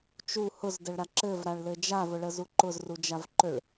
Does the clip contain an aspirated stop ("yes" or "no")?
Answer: no